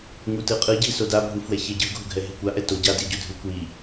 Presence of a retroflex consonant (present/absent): absent